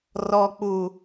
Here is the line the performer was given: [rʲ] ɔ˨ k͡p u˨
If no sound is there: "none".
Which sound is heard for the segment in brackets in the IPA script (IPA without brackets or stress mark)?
r